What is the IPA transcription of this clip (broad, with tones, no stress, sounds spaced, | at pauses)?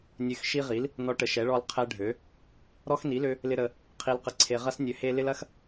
nʲ ø˦ x ʃ i˦ ʁ i˨˥ l | n ɔ˦ ʈ ə˨˥ ʃ ɛ˨˥ ɭ ɔ˦ l qʰ ɛ˦ ɖʱ ø˨˥ | ɾ ɔ˦ x n i˨˥ l ø˦ | l ɪ˦ ɾ ə˦ | qʰ i˦ l q ə˦ ǀʰ e˦ ʁ ɐ˦ s nʲ ø˨˥ h e˦ l ɪ˦ l ɐ˦ x